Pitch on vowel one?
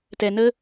low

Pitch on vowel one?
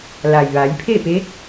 low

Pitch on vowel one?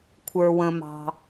high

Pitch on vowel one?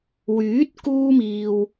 rising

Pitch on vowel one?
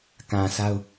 low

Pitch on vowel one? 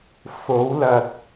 rising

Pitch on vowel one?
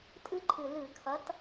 high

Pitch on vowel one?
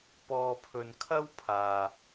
low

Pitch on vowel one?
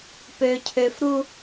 low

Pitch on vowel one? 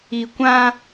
low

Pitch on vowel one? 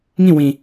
falling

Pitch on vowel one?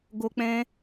high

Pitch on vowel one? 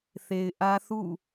low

